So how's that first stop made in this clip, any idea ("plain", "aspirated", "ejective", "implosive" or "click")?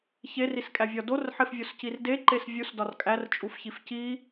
ejective